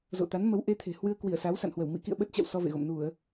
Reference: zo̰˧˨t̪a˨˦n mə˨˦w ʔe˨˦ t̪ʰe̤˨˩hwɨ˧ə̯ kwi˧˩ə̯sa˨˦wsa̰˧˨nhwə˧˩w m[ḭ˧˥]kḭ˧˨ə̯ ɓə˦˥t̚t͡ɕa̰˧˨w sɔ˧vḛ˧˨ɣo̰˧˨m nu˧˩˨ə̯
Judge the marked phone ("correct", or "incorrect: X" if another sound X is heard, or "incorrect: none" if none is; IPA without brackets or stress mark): correct